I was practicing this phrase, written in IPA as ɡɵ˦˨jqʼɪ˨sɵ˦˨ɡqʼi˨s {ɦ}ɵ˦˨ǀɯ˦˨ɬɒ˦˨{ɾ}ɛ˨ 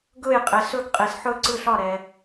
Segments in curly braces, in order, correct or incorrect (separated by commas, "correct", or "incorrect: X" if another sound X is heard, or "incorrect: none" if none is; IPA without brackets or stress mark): incorrect: ħ, correct